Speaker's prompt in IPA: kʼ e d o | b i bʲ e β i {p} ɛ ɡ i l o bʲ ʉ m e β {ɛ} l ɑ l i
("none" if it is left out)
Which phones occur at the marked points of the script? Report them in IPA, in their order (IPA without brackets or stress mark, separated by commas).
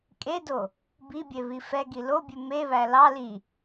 f, æ